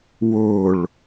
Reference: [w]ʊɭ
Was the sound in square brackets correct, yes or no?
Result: yes